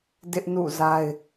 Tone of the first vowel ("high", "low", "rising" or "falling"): high